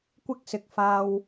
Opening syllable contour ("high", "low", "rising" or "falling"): high